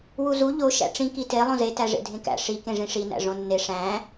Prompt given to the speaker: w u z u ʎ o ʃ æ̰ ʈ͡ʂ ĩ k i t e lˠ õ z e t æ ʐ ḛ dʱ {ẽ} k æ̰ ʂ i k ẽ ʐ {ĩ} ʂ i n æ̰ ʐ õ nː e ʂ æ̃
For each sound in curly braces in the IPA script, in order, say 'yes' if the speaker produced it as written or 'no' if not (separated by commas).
yes, yes